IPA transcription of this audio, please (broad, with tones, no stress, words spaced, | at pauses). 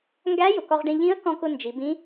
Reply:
ŋɡæ˧˥ jʊ˩kɔ˧ʁɖĩ˧ ʎĩ˧˥ə̯ kɔ̃˧kʊ˧ nd͡ʒi˩˧bĩ˧˥